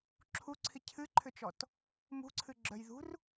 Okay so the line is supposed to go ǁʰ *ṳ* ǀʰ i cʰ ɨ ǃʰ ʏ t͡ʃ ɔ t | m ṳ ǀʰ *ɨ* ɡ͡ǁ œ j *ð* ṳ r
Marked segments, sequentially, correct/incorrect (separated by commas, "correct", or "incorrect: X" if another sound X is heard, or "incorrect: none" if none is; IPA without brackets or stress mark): incorrect: u, correct, correct